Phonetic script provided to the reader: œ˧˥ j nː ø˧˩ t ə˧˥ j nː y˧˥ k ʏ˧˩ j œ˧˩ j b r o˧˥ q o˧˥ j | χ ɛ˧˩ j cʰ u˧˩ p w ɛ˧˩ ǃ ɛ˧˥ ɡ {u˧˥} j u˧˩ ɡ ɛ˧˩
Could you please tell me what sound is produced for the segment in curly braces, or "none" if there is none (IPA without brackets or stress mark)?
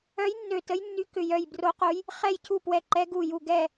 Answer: u˧˩